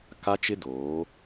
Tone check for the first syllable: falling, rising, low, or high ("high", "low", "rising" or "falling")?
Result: high